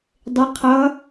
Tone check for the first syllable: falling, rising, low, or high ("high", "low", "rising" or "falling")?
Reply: rising